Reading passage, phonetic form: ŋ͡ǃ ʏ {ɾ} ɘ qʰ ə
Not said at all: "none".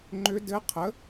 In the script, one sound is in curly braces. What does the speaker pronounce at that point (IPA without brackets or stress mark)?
d